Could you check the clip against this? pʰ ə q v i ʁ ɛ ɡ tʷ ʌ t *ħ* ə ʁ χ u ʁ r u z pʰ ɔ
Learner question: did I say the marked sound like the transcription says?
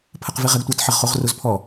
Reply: yes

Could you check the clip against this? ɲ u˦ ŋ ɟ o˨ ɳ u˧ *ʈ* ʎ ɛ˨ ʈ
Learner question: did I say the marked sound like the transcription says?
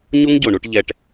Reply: yes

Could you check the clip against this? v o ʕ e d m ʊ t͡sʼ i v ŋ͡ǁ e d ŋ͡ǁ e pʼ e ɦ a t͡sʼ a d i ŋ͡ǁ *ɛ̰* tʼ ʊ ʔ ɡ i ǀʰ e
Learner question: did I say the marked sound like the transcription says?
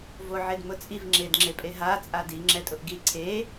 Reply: no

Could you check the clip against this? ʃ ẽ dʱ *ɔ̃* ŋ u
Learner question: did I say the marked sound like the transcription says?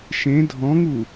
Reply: yes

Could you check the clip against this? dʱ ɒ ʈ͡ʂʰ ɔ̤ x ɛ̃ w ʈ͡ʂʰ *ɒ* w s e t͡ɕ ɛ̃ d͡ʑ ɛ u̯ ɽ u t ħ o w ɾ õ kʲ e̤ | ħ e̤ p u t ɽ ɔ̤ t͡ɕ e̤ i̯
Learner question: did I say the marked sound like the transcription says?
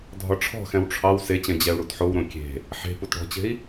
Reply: no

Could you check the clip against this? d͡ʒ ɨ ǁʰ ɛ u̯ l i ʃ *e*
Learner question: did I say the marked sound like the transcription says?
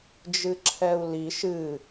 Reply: no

